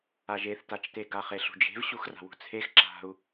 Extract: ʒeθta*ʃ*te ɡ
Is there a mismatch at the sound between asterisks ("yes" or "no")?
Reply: yes